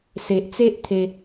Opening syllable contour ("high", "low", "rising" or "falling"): low